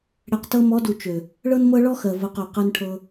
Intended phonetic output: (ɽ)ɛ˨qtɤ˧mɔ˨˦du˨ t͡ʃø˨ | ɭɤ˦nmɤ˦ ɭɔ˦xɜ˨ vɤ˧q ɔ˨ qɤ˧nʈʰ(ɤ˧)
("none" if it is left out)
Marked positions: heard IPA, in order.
ɽ, ɤ˧

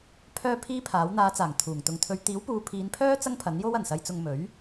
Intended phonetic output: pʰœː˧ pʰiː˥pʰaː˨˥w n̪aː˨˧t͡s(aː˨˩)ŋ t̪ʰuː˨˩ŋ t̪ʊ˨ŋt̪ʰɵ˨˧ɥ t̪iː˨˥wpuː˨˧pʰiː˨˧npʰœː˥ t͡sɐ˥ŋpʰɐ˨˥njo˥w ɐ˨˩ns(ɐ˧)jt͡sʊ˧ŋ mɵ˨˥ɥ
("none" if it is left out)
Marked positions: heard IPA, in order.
aː˨˩, ɐ˧

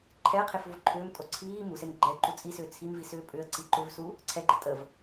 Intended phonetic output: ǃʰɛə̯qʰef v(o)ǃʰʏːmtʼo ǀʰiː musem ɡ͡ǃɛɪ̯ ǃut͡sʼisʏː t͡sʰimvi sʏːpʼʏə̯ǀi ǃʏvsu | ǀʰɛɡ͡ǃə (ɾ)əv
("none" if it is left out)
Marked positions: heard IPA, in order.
o, tʼ

